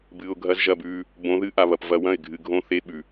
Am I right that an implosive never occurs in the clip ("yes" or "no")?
no